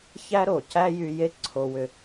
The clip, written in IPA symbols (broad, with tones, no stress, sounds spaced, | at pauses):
ç æ˥ ɾ o˩ c æ˥ j y˧ j e˥ ǀʰ o˧ w ʏ˧